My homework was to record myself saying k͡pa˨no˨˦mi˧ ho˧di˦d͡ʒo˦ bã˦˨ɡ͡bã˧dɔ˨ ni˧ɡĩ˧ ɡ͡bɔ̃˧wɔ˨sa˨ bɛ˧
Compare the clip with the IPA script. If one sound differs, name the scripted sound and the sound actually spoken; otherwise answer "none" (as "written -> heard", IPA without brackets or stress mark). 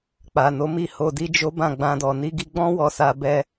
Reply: ĩ˧ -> i˧